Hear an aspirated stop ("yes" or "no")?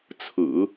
yes